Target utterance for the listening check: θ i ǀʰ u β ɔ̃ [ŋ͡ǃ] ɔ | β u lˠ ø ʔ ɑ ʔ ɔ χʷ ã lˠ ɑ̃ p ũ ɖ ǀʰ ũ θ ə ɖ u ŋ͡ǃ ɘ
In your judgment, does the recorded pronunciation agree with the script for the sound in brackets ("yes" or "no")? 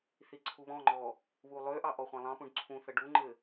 yes